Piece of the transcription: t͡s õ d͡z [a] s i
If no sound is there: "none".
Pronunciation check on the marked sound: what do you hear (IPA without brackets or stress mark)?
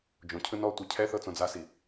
a